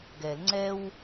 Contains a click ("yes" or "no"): yes